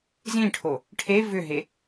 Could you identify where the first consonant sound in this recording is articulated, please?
alveolar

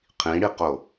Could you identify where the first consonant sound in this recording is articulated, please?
uvular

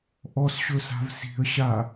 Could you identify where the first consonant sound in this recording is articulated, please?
glottal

